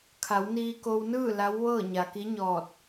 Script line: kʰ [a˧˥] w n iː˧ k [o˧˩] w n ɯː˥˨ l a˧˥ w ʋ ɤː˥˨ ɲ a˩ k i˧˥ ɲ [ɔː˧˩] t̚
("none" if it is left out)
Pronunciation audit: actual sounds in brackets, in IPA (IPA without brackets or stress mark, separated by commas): a˩˧, o˧, ɔː˧˩